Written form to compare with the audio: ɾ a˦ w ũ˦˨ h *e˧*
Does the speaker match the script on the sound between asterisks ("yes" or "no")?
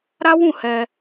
no